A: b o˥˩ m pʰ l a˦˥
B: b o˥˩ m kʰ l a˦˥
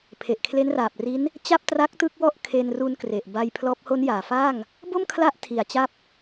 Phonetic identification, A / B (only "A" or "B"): B